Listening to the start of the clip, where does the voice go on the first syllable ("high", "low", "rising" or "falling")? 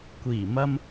low